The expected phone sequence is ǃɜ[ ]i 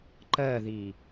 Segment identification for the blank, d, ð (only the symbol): ð